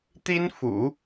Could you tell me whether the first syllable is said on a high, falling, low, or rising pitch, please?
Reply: high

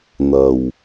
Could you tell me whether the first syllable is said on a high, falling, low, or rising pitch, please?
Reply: low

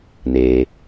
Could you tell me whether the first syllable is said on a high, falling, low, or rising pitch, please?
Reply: low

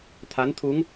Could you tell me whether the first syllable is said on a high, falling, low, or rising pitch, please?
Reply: rising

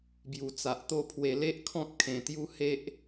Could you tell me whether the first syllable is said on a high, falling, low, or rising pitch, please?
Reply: low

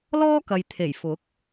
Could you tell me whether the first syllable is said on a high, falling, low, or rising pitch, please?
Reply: high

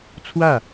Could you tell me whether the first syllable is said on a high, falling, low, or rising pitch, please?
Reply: falling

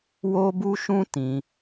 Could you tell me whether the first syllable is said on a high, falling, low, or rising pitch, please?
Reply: high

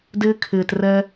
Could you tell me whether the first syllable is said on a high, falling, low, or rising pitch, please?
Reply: high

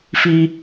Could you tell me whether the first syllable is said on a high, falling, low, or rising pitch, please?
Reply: high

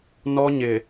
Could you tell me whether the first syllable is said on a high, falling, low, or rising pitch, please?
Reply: high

